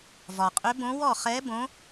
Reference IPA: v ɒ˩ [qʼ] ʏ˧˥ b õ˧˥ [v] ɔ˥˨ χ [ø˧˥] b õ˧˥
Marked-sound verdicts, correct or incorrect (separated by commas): correct, incorrect, incorrect